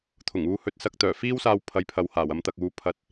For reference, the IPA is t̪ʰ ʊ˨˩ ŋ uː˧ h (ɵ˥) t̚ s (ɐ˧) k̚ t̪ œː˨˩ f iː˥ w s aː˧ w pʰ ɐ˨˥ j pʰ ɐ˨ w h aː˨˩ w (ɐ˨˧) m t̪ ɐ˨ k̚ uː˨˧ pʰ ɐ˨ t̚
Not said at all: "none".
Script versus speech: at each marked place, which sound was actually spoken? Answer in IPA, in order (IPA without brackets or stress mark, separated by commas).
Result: ɵ˨, ɐ˧, ɐ˨˧